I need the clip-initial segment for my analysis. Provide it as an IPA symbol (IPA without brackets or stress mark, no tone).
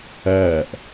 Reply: ɜː